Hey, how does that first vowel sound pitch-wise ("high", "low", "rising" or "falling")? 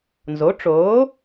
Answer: rising